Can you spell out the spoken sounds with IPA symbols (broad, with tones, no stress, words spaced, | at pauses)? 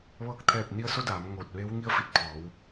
ʋɤː˥˨k̚ t̪ʰɛː˥˨p̚ ni˧˥ə̯so˧˥daː˩˧m ŋoː˧˩t̚ʋeː˧˥w ŋi˧˥ə̯fi˧˩t̚ pʰɔː˩˧w